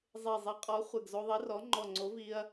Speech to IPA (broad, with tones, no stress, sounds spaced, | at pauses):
zˤ e˧˩ zˤ i˨˥ qʼ ɔ˨˥ χʷ e˧˩ ɡ z o˧ ðˤ i˨˥ r ɔ˨˥ ŋ͡ǃ ɔ˧˩ ŋ͡ǀ o˨˥ v i˧ ɐ̯